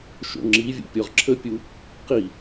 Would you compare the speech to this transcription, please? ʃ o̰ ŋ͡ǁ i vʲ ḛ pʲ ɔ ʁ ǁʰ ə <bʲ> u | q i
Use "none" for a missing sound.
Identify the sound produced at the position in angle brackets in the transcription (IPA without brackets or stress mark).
pʲ